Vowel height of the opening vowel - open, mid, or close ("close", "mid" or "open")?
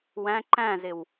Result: open